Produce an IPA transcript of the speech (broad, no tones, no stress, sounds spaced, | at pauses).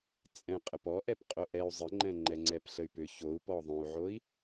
t͡sʼ ɛ̃ qʼ ə p ɔ ʔ ɛ p qʼ o ʔ ɛ u̯ zˤ ə ŋ͡ǃ ɛ̃ ŋ͡ǃ ɛ ŋ͡ǀ ɛ p ɬ ə y̯ p ʏ ç o u̯ p ɔ ðˤ õ u̯ ʕ o i̯